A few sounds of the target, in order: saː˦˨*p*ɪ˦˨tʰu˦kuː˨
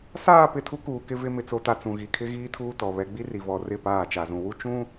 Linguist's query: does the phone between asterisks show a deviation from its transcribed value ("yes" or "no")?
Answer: no